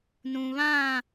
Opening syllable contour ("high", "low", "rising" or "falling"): low